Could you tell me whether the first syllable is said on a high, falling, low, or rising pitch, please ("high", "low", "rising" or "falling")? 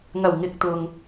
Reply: low